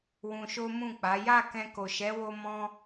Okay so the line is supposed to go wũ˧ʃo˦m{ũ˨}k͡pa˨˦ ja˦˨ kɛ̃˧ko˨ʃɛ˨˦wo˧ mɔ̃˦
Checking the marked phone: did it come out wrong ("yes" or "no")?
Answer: yes